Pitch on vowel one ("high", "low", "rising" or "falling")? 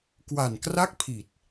low